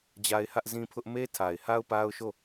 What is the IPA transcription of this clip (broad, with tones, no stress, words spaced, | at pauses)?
d͡ʑa˦ɪ̯hä˦ʔzĩ˦pʰʊ˦ʔ me˦tʰa˨ɪ̯ha˦ʊ̯ pa˦ʊ̯ʃo˦˨